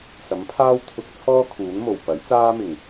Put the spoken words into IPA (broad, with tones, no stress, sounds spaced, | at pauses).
s ɐ˨˥ m pʰ aː˥ w t̪ʰ ʊ˧ k̚ t͡sʰ ɔː˥ kʰ uː˨˥ n m o˨˩ w p ɐ˨˥ j t͡s aː˥ m ɪ˨˩ ŋ